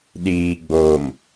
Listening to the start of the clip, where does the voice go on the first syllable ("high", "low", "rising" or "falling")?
low